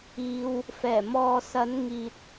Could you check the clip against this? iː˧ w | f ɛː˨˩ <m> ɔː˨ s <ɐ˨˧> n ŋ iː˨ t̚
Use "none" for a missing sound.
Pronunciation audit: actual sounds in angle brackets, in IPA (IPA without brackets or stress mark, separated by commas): m, ɐ˨˧